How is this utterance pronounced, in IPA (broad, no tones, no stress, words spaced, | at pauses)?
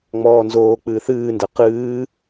ŋ͡mɔːnzoː k͡pɨːθɨːndɛ qɨː